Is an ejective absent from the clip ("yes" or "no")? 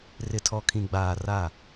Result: yes